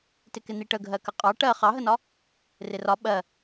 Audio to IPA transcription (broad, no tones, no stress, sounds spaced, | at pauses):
t ɪ k ɪ n̪ i ʈ ə ɡʱ ɜ k ə qʼ ɑ ʈ ɜ χ ɑ ɦ ə n ɒ | r ɪ r ɒ ɓ ɜ